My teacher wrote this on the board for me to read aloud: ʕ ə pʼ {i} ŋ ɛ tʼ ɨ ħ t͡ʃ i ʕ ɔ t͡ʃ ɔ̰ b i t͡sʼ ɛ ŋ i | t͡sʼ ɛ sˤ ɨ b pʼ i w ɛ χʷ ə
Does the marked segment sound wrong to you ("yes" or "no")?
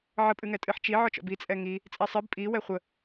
yes